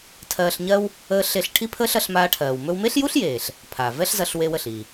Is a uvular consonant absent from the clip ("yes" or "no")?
yes